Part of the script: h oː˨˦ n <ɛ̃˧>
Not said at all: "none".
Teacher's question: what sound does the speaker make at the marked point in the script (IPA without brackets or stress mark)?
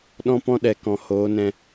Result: ɛ̃˧